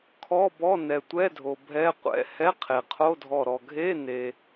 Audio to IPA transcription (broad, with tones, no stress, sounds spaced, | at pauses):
kʰ ɔ˧˥˧ b ɔ˧˥˧ n ɛ˩ tʷ ɛ˧˥˧ dʱ o˩ bʱ ɛ˧˥˧ qʷ ɛ̰˧˥˧ h ɛ˧˥˧ qʰ e˩ qʰ o˧˥˧ dʱ ɔ˧˩ ɾ ɔ˩ ɡʱ e˧˥˧ n e˩